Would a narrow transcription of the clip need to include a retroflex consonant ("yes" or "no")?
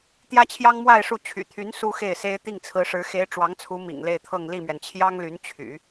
yes